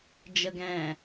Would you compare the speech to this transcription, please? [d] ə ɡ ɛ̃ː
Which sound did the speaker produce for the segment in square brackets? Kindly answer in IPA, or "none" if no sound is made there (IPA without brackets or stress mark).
d͡ʒ